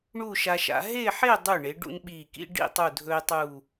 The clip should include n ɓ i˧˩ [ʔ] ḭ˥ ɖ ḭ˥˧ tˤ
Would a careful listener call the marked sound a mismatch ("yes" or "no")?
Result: yes